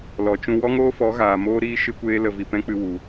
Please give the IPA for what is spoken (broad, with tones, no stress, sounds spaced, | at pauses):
l ɔ˨ t͡ʃ ũ˧ w ɔ˦ ŋ oː˦ f ɔ˨˦ ɣ aː˨ m oː˦ ɾ iː˦ ʃ ɨ˧ kʷ eː˧ l ə˨ v i˨ p ɛ̃˦ k͡p ɨ˧ w u˨